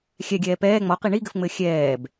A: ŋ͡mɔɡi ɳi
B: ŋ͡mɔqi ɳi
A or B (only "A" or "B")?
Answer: B